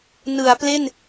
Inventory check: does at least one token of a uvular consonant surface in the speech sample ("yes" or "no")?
no